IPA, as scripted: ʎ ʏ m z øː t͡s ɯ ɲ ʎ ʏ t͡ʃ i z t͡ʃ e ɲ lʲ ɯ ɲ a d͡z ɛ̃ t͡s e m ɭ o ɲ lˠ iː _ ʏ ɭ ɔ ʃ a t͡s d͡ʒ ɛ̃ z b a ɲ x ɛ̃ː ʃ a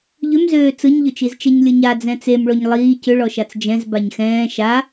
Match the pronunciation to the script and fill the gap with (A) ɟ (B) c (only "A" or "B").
B